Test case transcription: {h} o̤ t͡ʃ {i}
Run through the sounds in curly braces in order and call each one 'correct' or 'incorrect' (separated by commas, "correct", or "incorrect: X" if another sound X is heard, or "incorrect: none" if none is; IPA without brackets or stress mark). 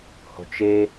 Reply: correct, incorrect: e